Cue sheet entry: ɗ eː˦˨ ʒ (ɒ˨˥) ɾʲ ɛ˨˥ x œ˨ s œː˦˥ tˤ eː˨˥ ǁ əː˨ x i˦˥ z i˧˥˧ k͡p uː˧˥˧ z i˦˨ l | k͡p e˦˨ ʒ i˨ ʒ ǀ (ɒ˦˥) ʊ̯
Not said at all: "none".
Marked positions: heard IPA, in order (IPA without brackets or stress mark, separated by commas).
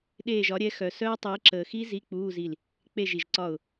ɒ˨˥, ɒ˦˨